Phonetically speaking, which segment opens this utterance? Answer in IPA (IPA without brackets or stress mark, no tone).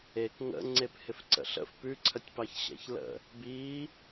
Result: e